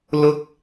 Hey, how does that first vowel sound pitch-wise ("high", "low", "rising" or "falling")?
high